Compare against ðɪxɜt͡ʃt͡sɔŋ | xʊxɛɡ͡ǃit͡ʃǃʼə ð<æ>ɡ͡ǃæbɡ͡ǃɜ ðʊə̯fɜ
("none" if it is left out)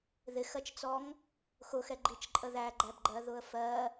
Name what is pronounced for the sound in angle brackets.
æ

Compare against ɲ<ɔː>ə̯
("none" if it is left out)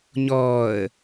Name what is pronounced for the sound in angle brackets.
ɔː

